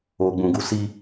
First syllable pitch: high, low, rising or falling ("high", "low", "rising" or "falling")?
low